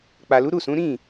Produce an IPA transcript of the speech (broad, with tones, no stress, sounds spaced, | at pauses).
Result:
k͡p a˨ l u˨˦ ɾ u˦˨ s ũ˨˦ ɾ ĩ˦˨